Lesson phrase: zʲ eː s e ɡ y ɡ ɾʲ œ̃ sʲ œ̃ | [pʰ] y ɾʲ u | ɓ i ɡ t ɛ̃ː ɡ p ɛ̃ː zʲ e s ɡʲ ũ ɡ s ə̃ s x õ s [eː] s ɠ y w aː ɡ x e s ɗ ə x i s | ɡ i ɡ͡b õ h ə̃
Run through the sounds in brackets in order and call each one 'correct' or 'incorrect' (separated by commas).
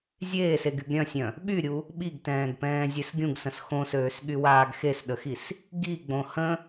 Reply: incorrect, incorrect